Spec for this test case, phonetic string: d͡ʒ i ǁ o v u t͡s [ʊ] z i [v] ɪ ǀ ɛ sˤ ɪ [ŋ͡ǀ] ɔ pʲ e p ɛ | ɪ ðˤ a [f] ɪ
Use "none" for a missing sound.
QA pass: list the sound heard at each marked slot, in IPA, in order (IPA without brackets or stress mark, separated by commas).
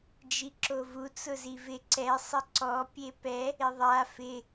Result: ʊ, v, ǀ, f